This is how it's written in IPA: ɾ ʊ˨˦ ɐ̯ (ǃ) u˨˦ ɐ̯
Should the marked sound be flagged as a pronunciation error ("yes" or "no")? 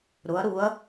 yes